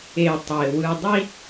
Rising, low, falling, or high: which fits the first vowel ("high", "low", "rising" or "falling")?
low